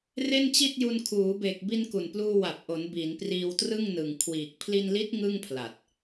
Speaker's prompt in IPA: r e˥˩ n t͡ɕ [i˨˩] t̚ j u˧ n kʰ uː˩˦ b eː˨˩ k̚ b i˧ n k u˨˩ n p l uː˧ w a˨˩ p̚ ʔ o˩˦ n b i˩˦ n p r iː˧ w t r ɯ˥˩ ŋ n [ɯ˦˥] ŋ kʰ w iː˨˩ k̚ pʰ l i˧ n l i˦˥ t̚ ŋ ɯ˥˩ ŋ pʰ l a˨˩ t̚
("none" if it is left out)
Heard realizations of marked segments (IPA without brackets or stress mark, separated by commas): i˥˩, ɯ˨˩